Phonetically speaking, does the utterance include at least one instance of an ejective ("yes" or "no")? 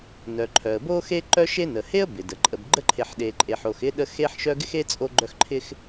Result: yes